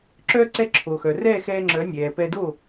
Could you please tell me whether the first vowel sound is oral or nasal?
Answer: oral